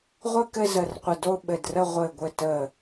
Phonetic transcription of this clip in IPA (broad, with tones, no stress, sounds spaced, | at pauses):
ʁʷ ɘ˥˧ k ɘ˥˧ z ə˧˩ r qʷ ɘ˧˩ d o˥˧ ɓ ɘ˧˩ d r ə˥˧ ʁʷ ɘ˧˩ ɡʷ ɘ˧˩ t ə˧˩